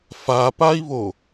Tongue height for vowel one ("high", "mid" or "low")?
low